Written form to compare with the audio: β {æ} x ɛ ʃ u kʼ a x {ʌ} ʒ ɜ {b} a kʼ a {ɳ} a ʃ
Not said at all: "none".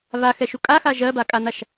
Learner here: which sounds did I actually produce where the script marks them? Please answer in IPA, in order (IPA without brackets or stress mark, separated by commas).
a, a, b, n̪